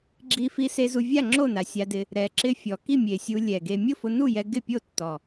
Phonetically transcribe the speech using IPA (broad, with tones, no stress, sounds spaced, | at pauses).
ɡ͡ǁ i˧ f i˧ s e˧ z u˧ vʲ a˥˨ ŋ͡ǁ o˥˨ n a˨˩ sʲ a˧ d ɪ˧ | ɾ ɛ˨˩ ǁ ɪ˧ fʲ ɔ˨˩ k i˥˨ mʲ e˨˩ sʲ u˧ lʲ ɛ˨˩ ɡ e˧ mʲ ʊ˥˨ f ʊ˧ n u˥˨ j ɛ˧ ɡ ɪ˥˨ pʲ o˥˨ tː ɔ˨˩